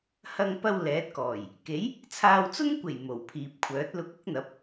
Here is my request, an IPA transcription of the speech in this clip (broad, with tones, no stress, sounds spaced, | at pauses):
h ɐ˧ ŋ p ɐ˧ w l ɛː˨˥ t̚ k ɔː˨˩ j | k e˨˥ j | t͡sʰ aː˧ w t͡s ʊ˥ ŋ kʷ e˨˩ j m o˨˩ w pʰ iː˨ p̚ kʷʰ œː˨˥ t̚ l ʊ˨˥ k̚ ʊ˨˥ k̚ n̪ ɐ˨˥ p̚